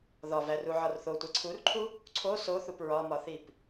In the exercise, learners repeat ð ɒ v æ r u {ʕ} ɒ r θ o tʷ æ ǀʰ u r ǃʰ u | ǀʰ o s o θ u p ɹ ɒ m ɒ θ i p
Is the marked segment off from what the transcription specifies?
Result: no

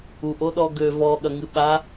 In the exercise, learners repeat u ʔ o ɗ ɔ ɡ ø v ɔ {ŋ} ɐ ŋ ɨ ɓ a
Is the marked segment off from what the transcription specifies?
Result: yes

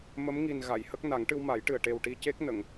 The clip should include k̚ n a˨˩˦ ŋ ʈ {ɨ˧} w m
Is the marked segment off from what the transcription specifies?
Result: no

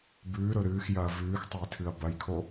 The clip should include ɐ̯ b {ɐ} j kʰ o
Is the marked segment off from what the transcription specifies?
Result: no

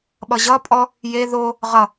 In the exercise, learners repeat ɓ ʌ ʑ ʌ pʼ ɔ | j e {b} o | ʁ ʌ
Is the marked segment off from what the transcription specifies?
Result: yes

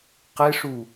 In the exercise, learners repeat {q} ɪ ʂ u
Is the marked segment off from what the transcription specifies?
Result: no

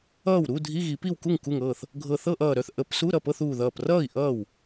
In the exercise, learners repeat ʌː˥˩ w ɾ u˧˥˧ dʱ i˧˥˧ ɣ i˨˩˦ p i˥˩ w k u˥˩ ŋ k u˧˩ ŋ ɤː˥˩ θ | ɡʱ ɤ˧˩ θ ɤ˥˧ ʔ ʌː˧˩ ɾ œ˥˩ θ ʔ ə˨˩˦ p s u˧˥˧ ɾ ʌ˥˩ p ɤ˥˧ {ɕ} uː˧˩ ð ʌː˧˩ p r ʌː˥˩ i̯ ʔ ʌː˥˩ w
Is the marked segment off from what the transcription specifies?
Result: yes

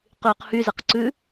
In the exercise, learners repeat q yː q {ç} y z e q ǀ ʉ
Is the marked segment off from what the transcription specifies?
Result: yes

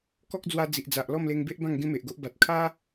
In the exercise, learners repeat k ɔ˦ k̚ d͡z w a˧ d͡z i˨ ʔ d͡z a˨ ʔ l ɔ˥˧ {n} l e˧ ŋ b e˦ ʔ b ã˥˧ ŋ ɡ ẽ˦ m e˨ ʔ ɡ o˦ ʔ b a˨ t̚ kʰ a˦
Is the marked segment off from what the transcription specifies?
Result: yes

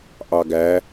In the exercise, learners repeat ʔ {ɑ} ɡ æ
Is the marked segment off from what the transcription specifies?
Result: no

